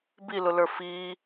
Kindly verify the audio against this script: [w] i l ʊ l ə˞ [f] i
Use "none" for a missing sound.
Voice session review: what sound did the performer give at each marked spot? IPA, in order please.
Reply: b, f

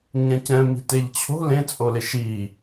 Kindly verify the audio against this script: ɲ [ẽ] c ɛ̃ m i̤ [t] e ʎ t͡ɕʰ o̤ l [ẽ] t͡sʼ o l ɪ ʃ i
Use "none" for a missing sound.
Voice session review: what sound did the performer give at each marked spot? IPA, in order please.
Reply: ɛ̃, t, ẽ

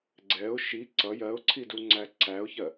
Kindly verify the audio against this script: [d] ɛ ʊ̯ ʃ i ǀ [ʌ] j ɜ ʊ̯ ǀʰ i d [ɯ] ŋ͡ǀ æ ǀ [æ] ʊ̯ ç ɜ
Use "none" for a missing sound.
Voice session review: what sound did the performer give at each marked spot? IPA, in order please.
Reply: ɡ͡ǀ, ʌ, u, æ

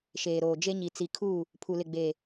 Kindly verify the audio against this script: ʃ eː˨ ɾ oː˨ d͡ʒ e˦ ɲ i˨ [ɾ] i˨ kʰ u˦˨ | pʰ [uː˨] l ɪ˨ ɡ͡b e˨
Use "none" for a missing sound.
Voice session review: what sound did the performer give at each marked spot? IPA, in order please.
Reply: t͡s, u˨

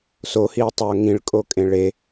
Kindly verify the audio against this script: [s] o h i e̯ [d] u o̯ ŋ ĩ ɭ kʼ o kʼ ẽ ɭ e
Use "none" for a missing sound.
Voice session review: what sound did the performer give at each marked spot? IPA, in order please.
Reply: s, tˤ

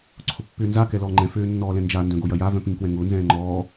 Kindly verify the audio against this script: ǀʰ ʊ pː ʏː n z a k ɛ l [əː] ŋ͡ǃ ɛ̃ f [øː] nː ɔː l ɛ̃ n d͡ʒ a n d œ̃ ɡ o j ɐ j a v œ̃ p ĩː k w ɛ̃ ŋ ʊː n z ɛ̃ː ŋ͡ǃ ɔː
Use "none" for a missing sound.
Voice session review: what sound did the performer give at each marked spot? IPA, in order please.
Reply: ɔː, øː

